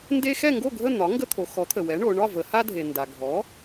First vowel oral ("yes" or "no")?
yes